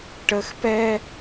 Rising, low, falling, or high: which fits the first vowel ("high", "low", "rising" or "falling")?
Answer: high